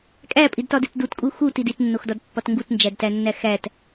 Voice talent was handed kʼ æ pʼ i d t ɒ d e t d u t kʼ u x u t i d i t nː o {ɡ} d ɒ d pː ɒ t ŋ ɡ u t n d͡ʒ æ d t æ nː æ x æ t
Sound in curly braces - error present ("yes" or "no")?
yes